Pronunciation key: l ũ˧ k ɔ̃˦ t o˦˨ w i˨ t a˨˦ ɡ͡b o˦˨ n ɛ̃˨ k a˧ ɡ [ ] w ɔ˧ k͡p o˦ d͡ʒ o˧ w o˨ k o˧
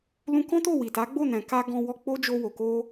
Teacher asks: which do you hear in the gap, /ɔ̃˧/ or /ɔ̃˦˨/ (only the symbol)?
ɔ̃˧